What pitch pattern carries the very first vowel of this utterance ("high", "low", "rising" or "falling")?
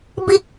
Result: high